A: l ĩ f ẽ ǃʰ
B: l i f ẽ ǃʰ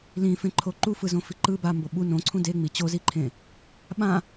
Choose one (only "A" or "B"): A